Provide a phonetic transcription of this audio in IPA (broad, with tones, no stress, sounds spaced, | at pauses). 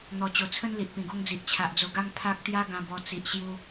n̪ ɔ˨˩ t͡ɕ o˨˩ t͡sʰ ə˦ n l i˨ ʔ p ĩ˨˩ ɡ o˦ ŋ d͡z i˨ ʔ t͡ɕʰ a˨ ʔ d͡z o˧ ɡ a˦ ŋ pʰ a˦ k̚ t̪ j a˦ ɡ ã˧ b ɔ˧ t͡s i˨ ʔ ɕ j u˧